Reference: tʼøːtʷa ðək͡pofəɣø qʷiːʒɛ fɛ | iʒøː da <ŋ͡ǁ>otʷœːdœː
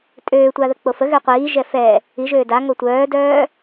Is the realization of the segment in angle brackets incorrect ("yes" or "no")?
yes